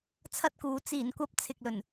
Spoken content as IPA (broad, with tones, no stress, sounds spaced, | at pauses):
t͡sʰ ɐ˥ t̚ k uː˨˧ t͡s iː˨˩ n kʷ ɐ˧ p̚ t͡sʰ ɪ˨ k̚ l ɵ˨˩ n